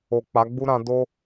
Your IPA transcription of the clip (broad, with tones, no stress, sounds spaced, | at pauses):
o˨ k͡p a˨˦ ɡ͡b u˦ ɾ ã˧ d o˦